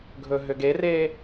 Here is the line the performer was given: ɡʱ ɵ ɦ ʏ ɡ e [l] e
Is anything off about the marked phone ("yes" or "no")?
yes